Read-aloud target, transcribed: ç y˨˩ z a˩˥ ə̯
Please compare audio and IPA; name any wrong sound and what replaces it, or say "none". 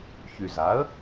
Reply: none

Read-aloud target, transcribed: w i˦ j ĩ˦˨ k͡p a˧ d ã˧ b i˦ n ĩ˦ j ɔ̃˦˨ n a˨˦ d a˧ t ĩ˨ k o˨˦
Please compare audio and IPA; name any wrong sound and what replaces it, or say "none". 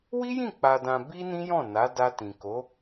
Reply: none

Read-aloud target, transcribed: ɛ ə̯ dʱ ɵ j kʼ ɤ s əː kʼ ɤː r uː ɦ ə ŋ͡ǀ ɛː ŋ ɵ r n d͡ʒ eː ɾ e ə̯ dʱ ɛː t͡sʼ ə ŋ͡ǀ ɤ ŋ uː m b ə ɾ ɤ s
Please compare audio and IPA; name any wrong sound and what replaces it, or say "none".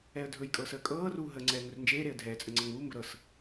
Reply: none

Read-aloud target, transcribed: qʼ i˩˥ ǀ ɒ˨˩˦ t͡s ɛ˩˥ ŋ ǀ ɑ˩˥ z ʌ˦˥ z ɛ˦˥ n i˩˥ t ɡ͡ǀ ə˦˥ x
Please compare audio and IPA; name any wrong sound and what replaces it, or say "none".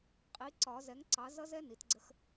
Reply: t͡s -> z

